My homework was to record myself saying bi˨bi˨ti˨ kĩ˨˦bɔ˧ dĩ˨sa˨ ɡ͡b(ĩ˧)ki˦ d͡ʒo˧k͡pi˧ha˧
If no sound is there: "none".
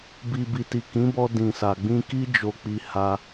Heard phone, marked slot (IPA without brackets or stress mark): ĩ˧